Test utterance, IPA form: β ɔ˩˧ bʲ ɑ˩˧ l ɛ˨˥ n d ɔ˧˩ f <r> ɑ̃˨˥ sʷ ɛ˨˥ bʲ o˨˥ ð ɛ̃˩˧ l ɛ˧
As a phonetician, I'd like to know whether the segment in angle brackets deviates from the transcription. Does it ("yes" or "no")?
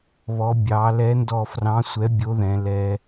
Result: no